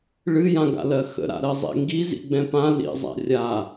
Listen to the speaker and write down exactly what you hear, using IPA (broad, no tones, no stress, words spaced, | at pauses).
ɭɨjãɡa̰lɜ xə̰ɾa̰ɾɜzˤḛ ŋɡizḭɡ͡bɛ̃ pã lḭzˤa̰ rʲa